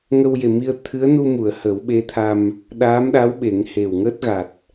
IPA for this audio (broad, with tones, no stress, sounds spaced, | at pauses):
ŋ ə˧ w j e˨˩ m i˧ ə̯ t̪ʰ ɨ˧˥ ə̯ n u˧ m u˨˩˨ ə̯ h ə˨˩˦ w ɓ e˧˥ t̪ʰ a˧ m | ɗ aː˧˥ m ɗ a˧˥ w ɓ e˨˩˦ ŋ h e˨˩ w ŋ əː˦˥ t̚ ɣ a˨˩ t̚